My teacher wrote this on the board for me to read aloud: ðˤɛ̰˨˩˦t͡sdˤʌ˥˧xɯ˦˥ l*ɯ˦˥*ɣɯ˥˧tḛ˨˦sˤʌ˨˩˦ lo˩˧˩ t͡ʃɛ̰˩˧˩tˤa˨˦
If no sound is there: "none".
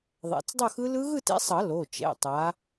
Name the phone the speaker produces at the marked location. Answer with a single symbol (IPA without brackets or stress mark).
ɯ˦˥